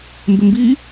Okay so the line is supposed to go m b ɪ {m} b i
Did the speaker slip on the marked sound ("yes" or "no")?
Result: no